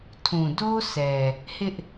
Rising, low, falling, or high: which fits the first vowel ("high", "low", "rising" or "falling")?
low